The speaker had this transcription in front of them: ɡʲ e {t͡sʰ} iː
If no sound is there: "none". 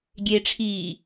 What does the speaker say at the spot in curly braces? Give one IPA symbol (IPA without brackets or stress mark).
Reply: ʈ͡ʂʰ